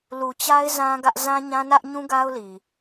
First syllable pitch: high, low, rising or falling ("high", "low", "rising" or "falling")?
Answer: low